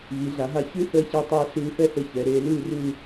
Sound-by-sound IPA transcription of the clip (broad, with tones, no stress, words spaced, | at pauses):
βi˩˧ɮa˩˧ɦa˧ çʉ˥ θəː˧ça˧tˤeː˧ ɬʉː˧fɛ˥θɘ˧ çɛ˩˧ ɾeː˩˧lʉː˥˧rʉ˥˧